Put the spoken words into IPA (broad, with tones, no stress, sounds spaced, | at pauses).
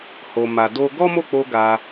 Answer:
h o˧ m a˧ d o˦ ɡ ɔ˦ m o˦˨ k͡p o˧ ɡ a˧